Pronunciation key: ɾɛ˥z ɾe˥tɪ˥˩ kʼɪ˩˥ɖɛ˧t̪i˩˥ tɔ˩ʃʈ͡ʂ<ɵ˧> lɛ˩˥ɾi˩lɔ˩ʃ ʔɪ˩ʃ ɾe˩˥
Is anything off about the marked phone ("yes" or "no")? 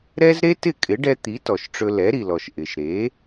no